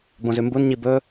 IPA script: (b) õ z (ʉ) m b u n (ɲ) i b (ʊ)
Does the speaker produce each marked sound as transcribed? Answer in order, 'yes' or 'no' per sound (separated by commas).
yes, yes, yes, no